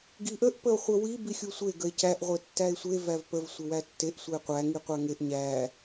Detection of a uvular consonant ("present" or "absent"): present